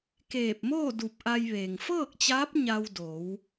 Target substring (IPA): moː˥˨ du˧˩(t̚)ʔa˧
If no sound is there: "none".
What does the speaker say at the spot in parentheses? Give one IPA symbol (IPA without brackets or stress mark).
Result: p̚